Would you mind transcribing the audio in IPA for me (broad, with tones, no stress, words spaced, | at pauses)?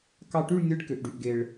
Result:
kɑ˥˧ ʈy˥˧ɭ nʲɯ˧˥˧ɖ kø˨˩ʔɖy˨˩ʔɡe˨˩ɭ